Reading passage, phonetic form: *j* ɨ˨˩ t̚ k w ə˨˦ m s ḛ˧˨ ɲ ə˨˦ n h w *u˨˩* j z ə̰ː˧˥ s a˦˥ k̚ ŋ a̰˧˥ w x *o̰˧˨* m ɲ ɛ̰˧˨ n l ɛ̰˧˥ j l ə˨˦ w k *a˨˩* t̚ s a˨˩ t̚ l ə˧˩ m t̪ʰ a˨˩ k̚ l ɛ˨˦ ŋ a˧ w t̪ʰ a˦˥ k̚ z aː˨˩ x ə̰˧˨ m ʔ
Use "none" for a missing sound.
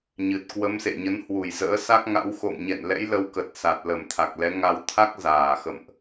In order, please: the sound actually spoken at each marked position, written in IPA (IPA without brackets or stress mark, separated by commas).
ɲ, u˨˩, o̰˧˨, ə˨˩